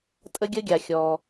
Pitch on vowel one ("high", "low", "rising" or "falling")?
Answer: high